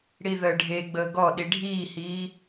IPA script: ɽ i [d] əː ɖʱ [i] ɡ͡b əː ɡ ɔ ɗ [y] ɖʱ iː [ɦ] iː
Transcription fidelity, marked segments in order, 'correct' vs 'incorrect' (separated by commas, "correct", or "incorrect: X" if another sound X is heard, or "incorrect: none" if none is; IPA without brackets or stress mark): incorrect: ð, incorrect: e, incorrect: i, incorrect: h